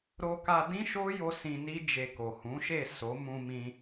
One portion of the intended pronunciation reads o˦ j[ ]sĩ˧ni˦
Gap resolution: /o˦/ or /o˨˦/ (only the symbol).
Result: o˦